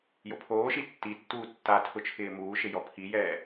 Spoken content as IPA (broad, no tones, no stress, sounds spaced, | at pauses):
j o pʰ oː ʃ i tː i tː uː tː a tʰ ʊ t͡ʃʰ ɪː m uː ʃ ɪ j ɔ pʰ i j ɛː